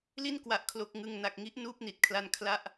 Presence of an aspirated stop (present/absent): present